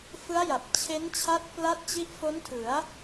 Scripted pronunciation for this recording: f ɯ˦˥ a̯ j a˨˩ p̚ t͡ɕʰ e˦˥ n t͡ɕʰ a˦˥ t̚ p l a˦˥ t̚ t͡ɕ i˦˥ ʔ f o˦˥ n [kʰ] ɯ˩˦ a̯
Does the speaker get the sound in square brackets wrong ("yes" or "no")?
yes